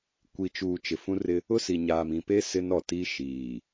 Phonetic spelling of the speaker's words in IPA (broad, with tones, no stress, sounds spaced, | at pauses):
kʷ i˨ t͡ʃ uː˨ t͡ʃ ɪ˨ f ũ˦ r ɪ˦ | ʊ˦ s i˨ ɲ aː˨ m ĩ˨ p e˦ s ɪ˦ n ɔ˨ t i˦ ʃ iː˨